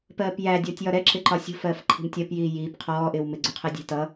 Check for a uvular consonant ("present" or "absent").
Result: present